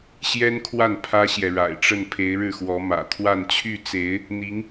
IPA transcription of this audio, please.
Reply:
ɕ j ɛ˥ n kʰ w a˥˩ n pʰ ä˥ ɕ j ɛ˨ ɻ a̰˨˩ ɪ̯ ʈ͡ʂ ə˥˩ n pʰ e˧˥ ɪ̯ ɻ ɻ̩˥˩ x w ɔ˧˥ m ä̰˨˩ t̪ʰ w a˥˧ n t͡ɕʰ y˥˩ t͡s e˧˥ ɪ̯ | n̪ i˧˥ ŋ

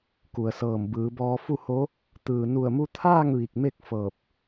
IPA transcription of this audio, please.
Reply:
k u˩ ə̯ s ɤː˧˩ m b ɯː˩˧ b ɔː˧ f u˥˨ h o˧˥ | t̪ ɯː˩ n u˧˩ ə̯ m u˧ t̪ʰ aː˥˨ ŋ ʋ i˧˩ k̚ m e˥˨ k̚ f ɤː˧˩ p̚

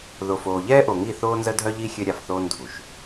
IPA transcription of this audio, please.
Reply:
ð o˨ f oː˨ ʎ ɛː˦ ʔ o˨ ŋ i˦˨ θ oː˦ n z ə˦ dʱ œ˦ ʎ i˦ xʲ ø˦ ɾʲ a˨ f θ oː˦ n dʱ u˨ ʃ

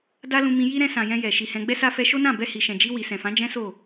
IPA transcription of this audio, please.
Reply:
d a˦ l ũ˧ m ĩ˧ j i˦ ɾ ɛ̃˧ s ã˨ j ɛ̃˧ j ɛ˨ ʃ i˨ h ɛ̃˧ ɡ͡b ɛ˧ s a˧ f ɛ˧ ʃ o˦ n ã˦˨ b ɛ˧ h i˨ ʃ ɛ̃˨ d͡ʒ i˧ w i˨ s ɛ̃˨ f ã˨˦ d͡ʒ ɛ̃˦ s o˦˨

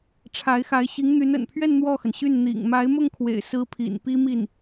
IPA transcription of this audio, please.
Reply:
ʈ͡ʂʰ a˧˥ ɪ̯ x a˧˥ ɪ̯ ɕ i˧˥ ŋ n̪ y˧˥ n ə̰˨˩ n pʰ ɥ ɛ˥˧ n n̪ w ɔ˥˩ x ə˩ n ɕ y˥˩ n n̪ ḭ˨˩ ŋ m a˧˥ ɪ̯ m ʊ˥˩ ŋ kʰ w ḛ˨˩ ɪ̯ s ɹ̩˧˥ pʰ ḭ˨˩ n p i˥ m i˥˩ n

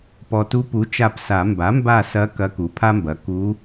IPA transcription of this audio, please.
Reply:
p ɔ˨ t u˧˥ p u˩˥ t͡ʃ a˦˨ p s a˨˩˦ m b a˩˥ m b a˦˨ s ɐ˧˥ k ɐ˧˥ k u˩˥ pʰ a˥ m b ɐ˩˥ k u˧˥

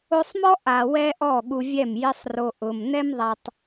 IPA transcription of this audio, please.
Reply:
o˧ sˤ m ɔ˦ ʔ a˨ w ɛ˦ ʔ ɔ˦˨ ɠ u˧ vʲ ɛ˦˨ m j ɪ˦ sˤ r o˧ ʔ ʊ˨ m n ɛ˦ m ðˤ a˦ tˤ

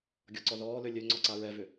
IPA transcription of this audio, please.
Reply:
ɡʲ ɔ ǀ ɔ ð ɔː l ø lʲ ø ŋ͡ǀ ɔ ǀ a ɹ ɛ v ʏ

